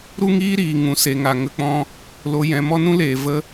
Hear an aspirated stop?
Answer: no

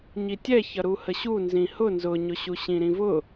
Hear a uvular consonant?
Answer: no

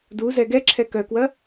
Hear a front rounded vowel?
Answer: yes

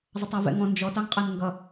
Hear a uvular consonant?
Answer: yes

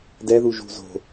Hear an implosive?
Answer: no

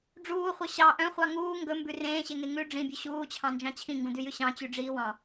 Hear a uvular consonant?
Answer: yes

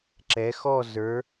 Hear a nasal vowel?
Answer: no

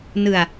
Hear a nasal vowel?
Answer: no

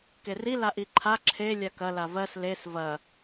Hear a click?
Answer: yes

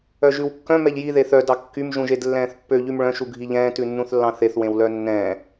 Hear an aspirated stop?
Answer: no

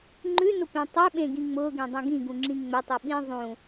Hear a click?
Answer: yes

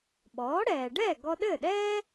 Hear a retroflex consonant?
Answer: yes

